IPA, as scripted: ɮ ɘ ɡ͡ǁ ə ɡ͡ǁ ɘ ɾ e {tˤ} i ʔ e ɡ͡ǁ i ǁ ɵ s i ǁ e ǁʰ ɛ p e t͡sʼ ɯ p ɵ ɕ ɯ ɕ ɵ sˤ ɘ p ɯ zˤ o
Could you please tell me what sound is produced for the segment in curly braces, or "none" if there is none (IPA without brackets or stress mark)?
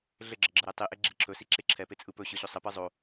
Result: tˤ